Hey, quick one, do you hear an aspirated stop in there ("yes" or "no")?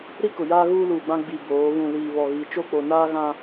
no